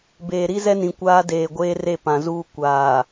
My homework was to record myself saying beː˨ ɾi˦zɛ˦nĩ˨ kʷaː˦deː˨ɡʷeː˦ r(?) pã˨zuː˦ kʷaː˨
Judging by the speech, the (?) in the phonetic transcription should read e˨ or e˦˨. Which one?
e˦˨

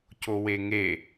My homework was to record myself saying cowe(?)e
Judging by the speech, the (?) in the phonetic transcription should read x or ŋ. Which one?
ŋ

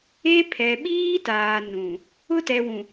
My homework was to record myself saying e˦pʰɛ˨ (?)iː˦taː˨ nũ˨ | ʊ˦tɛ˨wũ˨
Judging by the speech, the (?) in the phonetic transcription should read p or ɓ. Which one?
ɓ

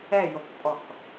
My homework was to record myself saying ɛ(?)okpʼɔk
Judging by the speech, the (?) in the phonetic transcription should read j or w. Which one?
j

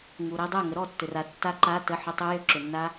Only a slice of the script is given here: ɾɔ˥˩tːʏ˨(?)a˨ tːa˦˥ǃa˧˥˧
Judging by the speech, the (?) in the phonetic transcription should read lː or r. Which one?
r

